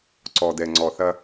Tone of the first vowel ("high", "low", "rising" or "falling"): low